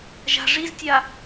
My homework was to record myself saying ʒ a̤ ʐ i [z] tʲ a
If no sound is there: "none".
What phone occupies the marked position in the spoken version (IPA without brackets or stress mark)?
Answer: z